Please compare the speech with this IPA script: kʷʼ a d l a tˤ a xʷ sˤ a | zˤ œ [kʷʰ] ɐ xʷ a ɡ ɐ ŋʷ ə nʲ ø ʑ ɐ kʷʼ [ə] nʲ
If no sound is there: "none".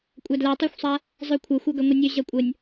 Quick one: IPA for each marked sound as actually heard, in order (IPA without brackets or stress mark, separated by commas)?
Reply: kʷʰ, ə